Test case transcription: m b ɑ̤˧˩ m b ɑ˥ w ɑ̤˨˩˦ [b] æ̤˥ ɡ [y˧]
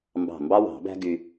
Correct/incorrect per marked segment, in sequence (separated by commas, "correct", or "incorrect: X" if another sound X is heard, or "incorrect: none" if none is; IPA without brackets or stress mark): correct, correct